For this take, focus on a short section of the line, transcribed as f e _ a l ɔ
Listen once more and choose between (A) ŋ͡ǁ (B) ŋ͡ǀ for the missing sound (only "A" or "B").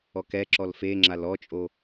A